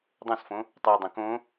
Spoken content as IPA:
dˤ õ s f õ | tˤ u y̯ dˤ õ k õ

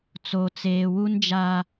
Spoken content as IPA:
t͡s o˨ t͡s eː˨ w u˦ n d͡ʒ aː˦

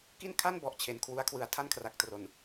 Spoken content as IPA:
k i˥˩ n kʰ a˥˩ n b ɔ˨˩ ʔ t͡ɕʰ e˩˦ n kʰ w u˦˥ a̯ kʰ w ɯ˧ a̯ tʰ a˥˩ n kʰ r a˨˩ k̚ t r o˨˩ n

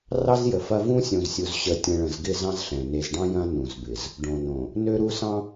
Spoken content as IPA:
r ɑ˦ z j ə˨ f ɐ˦ v ũ˦ sʲ õ˨ z sʲ u˨ z ɕ ə˨ tʲ ə̃˨ ɭ ə̃˨ z ɡ ɪ˦˨ z ɑ̃˦ z ɬ ɛ̃˨ n e˨ z ɖ ɑ̃˦ j ɐ̃˦ n ũ˨ z b ɪ˨ z | ɖ õ˨ n õ˨ | n ø˦ ɾ u˦ s ɑ̃˦

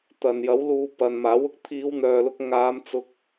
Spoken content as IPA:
t̪ ɐ˨ n j ɐ˨˥ w l uː˧ p ɐ˨ n m aː˨˥ w ʊ˨ k̚ t̪ʰ iː˨˧ w n̪ œː˨ l ʊ˧ k̚ ŋ aː˨˧ m t͡s ʊ˥ k̚

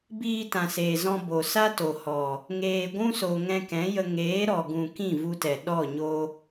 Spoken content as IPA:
b iː˧ t ã˨ s eː˨ z ɔ̃˧ b o˨ s a˦ t o˨ h ɔ˨ | ŋ eː˨ ɡʷ ũ˦ s o˨ ŋ ɛ̃˧ k ɛ̃˨˦ j ə˧ ŋ eː˨˦ ɾ ɔ˨ ɡ ũ˨ k ĩ˦˨ v u˧ t ɛ˨ ɗ ɔ˦˨ ɲ o˧

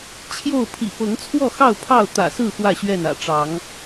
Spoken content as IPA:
t͡ɕʰ j o˥˨ ʊ̯ pʰ ḭ˨˩ p ɤ˨˦ ŋ t͡sʰ w ɔ˥˨ x ɑ˥˨ ʊ̯ pʰ ɑ˥˨ ʊ̯ t̪ ä̰˨˩ s ɹ̩˥˨ x w ä˥˨ ɕ ɥ ɛ˥˨ n ä̰˨˩ ʈ͡ʂ ɑ˨˦ ŋ

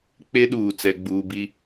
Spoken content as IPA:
k͡p e˦ ɗ uː˨ t͡s ɛ˨ ɡ͡b uː˨ b i˦

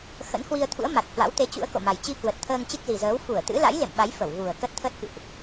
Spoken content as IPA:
x ə̰˧˥ n h w i˧ ə̯ t̪ʰ ṵ˧˥ ə̯ m a˨˩ t̚ h w a̰˧˥ w t̪ e˨˦ t͡ɕ ṵ˧˥ ə̯ k o̰˧˨ m a˨˩ j t͡ɕ i˧ k w ə˨˩ t̚ t̪ʰ əː˧ ŋ t͡ɕ ɨ˦˥ k̚ z i˨˩ z əː˨˦ w f u˧˩ ə̯ t̪ ɨ̰˧˥ l a̰˧˥ j l ḛ˧˨ m ɓ a˨˦ j f ə˧˩ w ɣ u˨˩ ə̯ k ə˦˥ t̚ t̪ʰ əː˦˥ t̚ k ɨ̰˧˨ ʔ

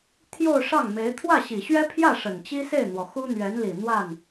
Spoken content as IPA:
t̪ʰ j o˥˧ ʊ̯ ʂ ɑ˥˩ ŋ m e˧˥ ɪ̯ t̪ʰ w ä˥˩ ɕ i˨˩ ɕ ɥ ɛ˥ pʰ j ä˥˩ ʂ ə˨˩ n t͡ɕ i˥ s e˥˩ ɪ̯ n̪ w ɔ˩ x u˥ n̪ ɥ ɛ˧˥ n l i˨˩ n̪ w a˥˩ n

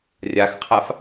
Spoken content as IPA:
rʲ a x qʰ a f

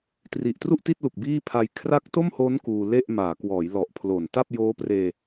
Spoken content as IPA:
t r i˨˩ ʔ t r u˥˩ ʔ t i˥˩ t̚ l u˨˩ k̚ b iː˥˩ pʰ a˧ j kʰ r a˦˥ k̚ t o˥˩ m h o˦˥ n k uː˧ l e˥˩ ʔ m aː˩˦ k w ɔː˩˦ j l ɔ˨˩ ʔ pʰ l o˨˩ n t a˥˩ p̚ j oː˦˥ p r eː˧

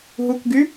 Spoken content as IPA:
ɦ u k ɡ y

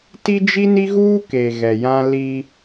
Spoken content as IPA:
t i˦ d͡ʒ i˦ n i˦ ɣ uː˦ k e˨ ɣ ɛ˨ j ã˦ l i˦

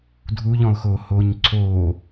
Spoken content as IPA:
dʱ u ʎ ɔ̃ ʊ̯ x oː h oː ɲ ǀʰ oː

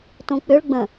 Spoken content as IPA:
t õ k͡p ʏ ɭ ɡ͡b ə̃

